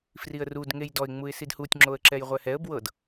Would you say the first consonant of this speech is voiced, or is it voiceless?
voiceless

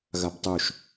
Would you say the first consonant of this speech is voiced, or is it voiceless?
voiced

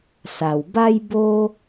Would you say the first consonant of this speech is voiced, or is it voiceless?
voiceless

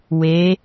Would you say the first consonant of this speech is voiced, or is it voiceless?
voiced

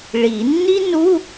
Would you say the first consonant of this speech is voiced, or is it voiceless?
voiced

